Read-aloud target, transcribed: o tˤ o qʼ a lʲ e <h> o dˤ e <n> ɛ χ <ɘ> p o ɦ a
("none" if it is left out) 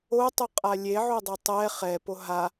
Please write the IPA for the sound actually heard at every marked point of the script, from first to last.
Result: ʕ, tˤ, ɛ

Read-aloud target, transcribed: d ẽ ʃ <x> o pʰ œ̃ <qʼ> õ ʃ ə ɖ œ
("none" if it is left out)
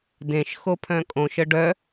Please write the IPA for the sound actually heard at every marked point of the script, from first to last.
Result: x, kʼ

